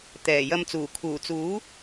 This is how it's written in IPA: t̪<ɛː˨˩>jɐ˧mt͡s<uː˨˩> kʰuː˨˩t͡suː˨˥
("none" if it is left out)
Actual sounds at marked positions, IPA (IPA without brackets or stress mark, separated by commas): ɛː˨˩, uː˨˩